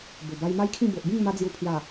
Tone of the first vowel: low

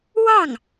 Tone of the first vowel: falling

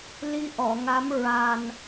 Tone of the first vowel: rising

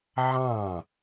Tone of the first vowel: falling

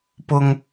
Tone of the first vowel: high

